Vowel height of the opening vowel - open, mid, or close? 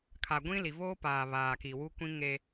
open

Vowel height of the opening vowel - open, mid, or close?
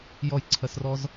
mid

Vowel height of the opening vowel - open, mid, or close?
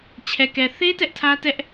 mid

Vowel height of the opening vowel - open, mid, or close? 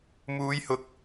close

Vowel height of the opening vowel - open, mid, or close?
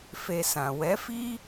mid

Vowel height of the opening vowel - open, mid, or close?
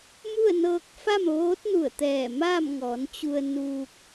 close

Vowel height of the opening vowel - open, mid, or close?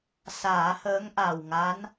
open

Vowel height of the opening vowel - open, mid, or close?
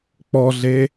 mid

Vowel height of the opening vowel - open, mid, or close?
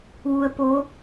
close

